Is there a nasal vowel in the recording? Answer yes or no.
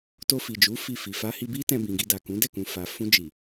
yes